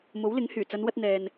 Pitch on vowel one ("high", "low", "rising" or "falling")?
rising